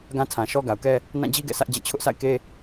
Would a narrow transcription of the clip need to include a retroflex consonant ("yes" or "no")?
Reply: no